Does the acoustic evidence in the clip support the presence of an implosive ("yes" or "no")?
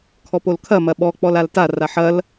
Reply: yes